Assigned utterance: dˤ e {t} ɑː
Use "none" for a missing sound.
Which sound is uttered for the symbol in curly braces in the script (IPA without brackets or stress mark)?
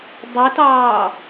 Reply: t